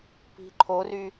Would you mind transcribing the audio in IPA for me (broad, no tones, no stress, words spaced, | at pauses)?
pi̤ǃʰory